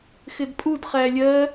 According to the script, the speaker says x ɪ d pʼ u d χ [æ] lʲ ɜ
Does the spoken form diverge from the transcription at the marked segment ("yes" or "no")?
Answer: no